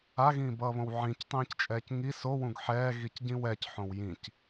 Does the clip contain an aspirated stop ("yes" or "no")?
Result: no